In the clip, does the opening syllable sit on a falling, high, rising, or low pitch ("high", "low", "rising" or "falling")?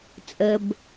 low